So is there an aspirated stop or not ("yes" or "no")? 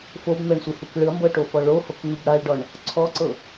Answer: yes